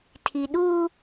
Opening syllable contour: low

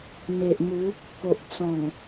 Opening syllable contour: low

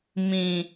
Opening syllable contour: low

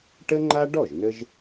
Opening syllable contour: high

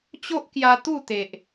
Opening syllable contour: high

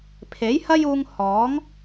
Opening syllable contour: rising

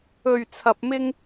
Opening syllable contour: low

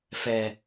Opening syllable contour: low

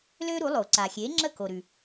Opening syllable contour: high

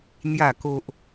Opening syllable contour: falling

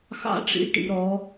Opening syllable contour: high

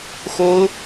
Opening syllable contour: high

